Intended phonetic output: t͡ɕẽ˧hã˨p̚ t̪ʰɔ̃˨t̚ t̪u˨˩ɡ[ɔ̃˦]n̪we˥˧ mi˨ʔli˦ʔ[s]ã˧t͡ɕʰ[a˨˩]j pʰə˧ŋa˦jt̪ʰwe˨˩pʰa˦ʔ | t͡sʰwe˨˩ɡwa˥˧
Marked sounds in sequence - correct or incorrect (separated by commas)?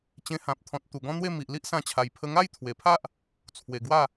correct, correct, correct